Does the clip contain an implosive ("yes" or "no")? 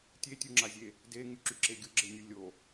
no